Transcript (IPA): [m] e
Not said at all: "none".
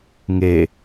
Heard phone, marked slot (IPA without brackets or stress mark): ŋ